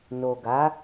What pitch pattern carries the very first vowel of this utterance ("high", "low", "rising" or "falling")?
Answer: low